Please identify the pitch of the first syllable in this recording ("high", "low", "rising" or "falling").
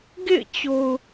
falling